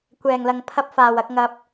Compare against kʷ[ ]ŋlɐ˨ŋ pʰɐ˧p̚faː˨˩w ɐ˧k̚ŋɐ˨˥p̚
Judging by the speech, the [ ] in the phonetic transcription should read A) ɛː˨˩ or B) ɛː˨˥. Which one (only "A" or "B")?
A